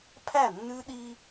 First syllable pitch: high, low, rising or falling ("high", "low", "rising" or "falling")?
falling